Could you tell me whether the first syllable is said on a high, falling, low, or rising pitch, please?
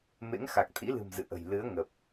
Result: rising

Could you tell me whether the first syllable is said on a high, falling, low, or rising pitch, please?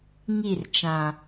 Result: falling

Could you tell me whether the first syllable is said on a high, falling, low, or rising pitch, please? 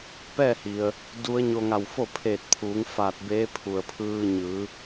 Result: falling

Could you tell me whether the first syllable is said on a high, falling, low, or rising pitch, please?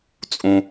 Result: low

